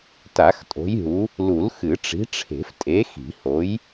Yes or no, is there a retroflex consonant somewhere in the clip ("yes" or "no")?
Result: yes